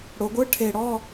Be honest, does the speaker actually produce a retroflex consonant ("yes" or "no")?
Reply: yes